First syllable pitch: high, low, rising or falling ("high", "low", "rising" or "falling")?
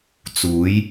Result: rising